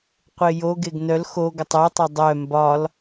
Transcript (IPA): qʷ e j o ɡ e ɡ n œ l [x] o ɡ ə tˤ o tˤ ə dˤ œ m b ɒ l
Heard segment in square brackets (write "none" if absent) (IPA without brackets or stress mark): x